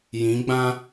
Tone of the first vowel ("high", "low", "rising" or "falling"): rising